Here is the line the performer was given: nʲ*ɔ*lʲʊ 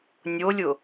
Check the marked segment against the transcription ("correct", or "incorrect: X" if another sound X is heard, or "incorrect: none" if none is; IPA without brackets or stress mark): incorrect: o